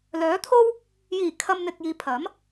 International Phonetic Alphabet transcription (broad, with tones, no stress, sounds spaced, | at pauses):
l œː˨˥ t̪ʰ o˥ w | j iː˨˩ kʰ ɐ˨ m n̪ ɪ˨ k̚ j iː˨ pʰ ɐ˨˥ m